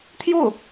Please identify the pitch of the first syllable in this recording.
falling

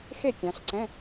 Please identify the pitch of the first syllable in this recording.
falling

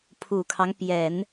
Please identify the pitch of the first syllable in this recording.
low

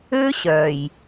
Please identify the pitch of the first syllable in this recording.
high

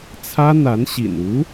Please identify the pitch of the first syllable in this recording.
high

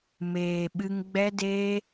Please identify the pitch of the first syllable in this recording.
low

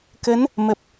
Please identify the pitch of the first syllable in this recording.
rising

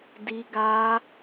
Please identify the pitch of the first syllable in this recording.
high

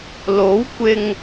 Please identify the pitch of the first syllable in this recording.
rising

